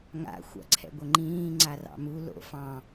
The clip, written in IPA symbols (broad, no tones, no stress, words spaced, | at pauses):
ŋa̰ xʷa̰ǀʰɛ̰ɡʷɘŋ͡ǃĩː ŋ͡ǀarɑ̰mu lo̰ fɑ̃